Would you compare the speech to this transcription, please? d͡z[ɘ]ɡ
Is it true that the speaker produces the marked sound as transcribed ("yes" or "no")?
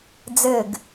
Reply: yes